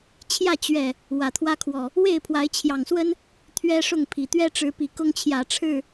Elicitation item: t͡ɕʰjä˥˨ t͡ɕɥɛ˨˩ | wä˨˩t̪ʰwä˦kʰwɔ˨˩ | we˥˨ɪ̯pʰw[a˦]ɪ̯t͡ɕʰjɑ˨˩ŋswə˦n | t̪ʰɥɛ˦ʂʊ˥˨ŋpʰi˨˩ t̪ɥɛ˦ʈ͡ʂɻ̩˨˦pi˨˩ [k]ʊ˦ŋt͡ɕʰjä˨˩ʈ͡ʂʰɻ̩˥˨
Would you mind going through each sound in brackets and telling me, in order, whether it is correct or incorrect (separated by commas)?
incorrect, correct